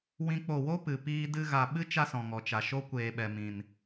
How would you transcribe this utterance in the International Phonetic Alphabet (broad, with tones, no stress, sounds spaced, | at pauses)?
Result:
w ĩ˦ k͡p o˦˨ w o˦ p ɨ˨ p iː˧ d ɨ˧ ɣ a˨ ɓ ɨ˦ t͡ʃ a˦ s ɔ̃˨ ŋ ɔ˨ t͡ʃ a˨ ʃ o˦ kʷ eː˨ ɓ ɛ˨ m ĩ˨ n